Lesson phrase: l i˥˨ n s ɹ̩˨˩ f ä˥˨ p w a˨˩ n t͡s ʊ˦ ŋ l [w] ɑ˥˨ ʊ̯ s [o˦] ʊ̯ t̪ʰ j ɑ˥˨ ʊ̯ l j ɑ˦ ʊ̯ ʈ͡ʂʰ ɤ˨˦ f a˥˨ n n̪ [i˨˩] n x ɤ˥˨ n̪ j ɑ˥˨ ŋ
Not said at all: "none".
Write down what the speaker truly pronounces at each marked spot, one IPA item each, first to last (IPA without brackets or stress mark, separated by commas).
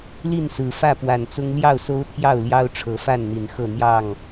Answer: j, o˦, i˨˩